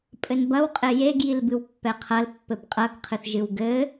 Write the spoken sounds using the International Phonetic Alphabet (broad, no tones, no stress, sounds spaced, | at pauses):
pʼ ɘ n b ɐ w qʼ e j e ɡ j i l b ɨ w pː ɛ qʰ ɐ l pː ɘ b qʼ ɐ ɡ qʰ ɨ θ ʒ ɨ w ɡ ɘ